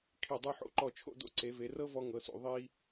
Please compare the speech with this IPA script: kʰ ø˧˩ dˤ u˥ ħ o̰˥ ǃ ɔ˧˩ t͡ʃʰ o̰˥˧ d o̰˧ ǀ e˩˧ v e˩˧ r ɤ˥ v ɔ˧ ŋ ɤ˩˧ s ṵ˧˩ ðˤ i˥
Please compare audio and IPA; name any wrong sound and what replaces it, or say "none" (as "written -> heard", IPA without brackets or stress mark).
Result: ø˧˩ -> e˧˩